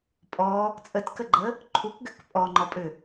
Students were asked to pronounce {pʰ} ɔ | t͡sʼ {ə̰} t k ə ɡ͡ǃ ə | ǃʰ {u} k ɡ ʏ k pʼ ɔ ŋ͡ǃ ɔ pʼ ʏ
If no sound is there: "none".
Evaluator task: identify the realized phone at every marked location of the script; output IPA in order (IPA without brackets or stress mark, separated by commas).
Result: pʼ, ə, u